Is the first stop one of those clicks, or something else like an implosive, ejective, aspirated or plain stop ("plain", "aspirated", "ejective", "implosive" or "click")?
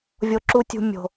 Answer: click